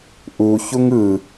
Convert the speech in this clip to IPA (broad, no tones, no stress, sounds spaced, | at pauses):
ʔ u ç u ŋ ɯ